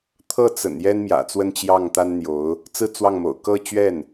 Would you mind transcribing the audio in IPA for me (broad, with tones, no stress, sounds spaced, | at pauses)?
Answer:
t̪ʰ ɤ˥˩ t͡s ə̰˨˩ n j ɛ˥ n m j ä̰˨˩ t͡s w ə˥˧ n t͡ɕ j ɑ˥˩ ŋ t̪ a˥ n n̪ j o˧˥ ʊ̯ | t͡s ɹ̩˥˧ t͡s w ɑ˥˩ ŋ m o̰˨˩ ʊ̯ k ɤ˥˧ t͡ɕ ɥ ɛ˥˩ n